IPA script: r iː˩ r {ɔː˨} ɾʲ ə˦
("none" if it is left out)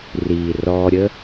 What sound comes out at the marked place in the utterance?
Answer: ɔː˨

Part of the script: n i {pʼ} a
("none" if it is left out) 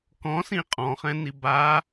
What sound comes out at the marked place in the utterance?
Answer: b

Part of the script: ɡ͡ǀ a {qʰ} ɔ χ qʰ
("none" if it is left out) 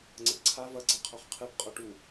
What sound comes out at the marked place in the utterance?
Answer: qʰ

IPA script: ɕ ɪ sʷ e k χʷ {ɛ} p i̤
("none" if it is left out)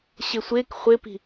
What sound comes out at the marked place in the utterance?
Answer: ɪ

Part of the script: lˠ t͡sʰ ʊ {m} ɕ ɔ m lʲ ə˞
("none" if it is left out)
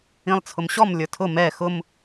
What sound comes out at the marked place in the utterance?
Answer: m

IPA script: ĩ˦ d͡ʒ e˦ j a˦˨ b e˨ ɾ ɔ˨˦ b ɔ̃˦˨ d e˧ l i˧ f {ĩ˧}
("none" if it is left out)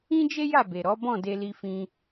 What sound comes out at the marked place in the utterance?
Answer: ĩ˧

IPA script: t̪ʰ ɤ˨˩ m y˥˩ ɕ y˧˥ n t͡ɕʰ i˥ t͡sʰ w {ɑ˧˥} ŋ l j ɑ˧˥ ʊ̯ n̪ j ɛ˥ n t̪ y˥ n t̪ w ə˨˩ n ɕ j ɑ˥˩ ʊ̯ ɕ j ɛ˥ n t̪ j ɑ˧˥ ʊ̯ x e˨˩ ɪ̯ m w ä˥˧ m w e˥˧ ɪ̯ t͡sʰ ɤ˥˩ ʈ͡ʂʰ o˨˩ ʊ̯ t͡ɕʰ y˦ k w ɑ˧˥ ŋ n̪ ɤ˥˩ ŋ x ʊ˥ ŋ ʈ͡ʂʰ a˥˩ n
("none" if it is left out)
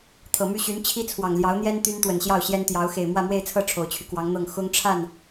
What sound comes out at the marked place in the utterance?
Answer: ɑ˨˩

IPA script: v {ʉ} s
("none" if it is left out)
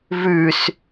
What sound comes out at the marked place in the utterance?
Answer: ʉ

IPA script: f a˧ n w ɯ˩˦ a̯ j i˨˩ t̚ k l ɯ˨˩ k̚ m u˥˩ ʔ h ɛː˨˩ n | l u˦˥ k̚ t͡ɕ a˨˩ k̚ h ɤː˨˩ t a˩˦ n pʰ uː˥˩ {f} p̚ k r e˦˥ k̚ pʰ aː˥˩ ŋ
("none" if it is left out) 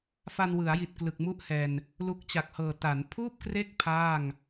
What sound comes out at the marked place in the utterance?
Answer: none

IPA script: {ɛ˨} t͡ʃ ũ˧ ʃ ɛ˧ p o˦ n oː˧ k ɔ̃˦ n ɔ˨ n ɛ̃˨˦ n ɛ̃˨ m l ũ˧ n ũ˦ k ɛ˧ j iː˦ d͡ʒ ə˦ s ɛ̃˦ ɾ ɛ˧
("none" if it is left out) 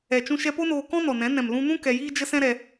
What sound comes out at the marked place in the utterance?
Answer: ɛ˨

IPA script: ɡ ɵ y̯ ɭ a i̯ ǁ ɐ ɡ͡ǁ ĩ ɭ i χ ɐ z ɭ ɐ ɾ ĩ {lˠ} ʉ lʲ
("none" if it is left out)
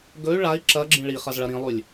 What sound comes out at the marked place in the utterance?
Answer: lˠ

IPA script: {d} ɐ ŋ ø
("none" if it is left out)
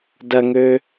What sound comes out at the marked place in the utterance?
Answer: d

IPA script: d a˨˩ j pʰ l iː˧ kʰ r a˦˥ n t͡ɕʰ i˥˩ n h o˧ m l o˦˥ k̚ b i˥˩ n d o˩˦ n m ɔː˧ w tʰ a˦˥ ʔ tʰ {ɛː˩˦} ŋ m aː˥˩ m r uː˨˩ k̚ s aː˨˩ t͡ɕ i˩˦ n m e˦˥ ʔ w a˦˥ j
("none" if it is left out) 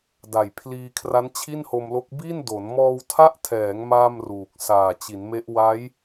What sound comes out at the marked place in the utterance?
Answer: ɛː˩˦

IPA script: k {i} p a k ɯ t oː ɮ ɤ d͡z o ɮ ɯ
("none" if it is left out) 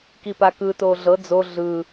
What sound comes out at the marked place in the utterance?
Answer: i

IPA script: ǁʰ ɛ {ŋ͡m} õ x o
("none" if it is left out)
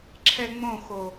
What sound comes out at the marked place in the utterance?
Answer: ŋ͡m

